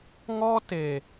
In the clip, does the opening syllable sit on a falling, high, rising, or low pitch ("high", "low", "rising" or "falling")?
high